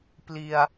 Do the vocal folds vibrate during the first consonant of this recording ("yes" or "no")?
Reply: no